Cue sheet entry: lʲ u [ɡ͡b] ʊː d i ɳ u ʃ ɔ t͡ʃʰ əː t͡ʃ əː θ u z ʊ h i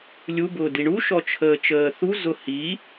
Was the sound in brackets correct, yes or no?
no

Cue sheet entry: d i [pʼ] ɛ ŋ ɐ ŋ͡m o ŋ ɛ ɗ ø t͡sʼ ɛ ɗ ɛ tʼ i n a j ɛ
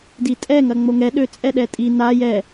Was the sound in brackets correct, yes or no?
no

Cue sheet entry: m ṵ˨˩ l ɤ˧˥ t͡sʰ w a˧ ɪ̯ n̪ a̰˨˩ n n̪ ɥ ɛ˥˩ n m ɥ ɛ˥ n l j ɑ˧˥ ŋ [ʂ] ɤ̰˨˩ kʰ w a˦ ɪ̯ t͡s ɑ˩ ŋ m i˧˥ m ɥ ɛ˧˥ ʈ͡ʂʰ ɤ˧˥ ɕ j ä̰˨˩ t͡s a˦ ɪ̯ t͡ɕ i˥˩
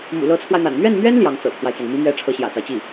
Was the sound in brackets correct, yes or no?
no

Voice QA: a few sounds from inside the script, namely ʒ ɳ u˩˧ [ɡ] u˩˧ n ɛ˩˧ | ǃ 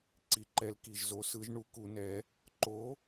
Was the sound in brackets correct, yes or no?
no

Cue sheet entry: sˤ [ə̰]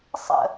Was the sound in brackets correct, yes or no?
yes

